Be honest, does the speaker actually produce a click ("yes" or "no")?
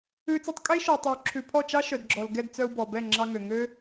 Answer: yes